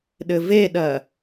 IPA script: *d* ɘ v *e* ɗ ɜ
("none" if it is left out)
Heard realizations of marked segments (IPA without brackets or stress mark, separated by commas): ɗ, e